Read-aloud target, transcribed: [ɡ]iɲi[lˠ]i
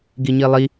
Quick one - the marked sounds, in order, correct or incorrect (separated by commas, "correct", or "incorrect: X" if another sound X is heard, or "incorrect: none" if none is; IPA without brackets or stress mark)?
correct, correct